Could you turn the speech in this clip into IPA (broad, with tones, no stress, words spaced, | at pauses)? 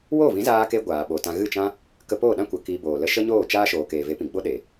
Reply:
wo˦˨vĩ˨˦zaː˧ke˧ ɡʷaː˨ɓo˨tã˧ ɣɨ˦˨t͡ʃã˦ | kə˧poː˦˨ɗã˦ kʷə˨ ki˧boː˨lə˦ ʃə˦ɲoː˦˨t͡ʃaː˦ ʃoː˨ keː˨ve˨˦pĩ˨ɡ͡bo˦ ɗe˨